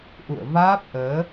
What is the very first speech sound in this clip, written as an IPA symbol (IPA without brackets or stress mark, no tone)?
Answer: ʔ